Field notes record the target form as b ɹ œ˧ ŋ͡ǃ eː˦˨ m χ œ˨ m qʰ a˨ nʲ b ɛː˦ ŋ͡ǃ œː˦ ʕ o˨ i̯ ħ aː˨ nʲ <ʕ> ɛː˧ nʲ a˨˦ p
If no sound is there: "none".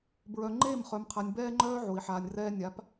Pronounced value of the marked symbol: r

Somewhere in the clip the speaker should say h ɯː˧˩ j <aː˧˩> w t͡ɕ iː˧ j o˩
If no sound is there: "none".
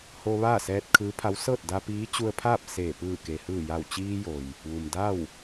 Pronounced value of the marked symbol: a˧˩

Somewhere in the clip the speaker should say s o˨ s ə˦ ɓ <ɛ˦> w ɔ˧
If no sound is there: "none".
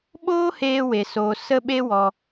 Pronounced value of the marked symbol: e˦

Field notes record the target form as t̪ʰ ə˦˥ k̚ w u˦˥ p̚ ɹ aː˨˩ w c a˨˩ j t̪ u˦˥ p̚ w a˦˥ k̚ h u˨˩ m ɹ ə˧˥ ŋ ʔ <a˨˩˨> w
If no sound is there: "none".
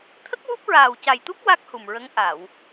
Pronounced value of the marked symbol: a˨˩˨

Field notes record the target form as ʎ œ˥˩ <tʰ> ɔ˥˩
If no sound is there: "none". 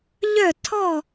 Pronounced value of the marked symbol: tʰ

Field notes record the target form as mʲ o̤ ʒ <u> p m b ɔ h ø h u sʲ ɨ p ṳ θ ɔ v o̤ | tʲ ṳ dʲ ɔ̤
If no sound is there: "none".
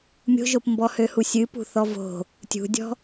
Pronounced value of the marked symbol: o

